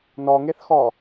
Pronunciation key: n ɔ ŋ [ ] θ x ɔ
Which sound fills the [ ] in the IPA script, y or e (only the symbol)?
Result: e